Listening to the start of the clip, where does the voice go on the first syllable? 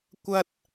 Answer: high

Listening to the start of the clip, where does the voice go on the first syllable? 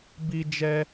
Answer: high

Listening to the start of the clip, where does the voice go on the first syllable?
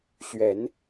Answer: rising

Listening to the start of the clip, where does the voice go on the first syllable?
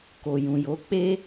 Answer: low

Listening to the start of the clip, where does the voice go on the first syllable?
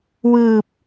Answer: low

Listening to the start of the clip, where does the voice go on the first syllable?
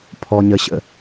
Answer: low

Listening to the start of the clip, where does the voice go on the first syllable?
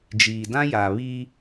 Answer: low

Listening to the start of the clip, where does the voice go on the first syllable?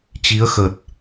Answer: rising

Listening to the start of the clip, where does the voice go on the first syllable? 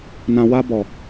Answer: low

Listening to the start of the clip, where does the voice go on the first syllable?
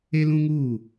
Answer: high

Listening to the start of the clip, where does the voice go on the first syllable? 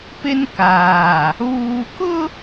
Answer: high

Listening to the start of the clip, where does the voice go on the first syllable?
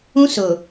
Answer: high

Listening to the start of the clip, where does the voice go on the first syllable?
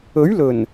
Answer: rising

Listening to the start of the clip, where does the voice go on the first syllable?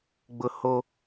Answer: high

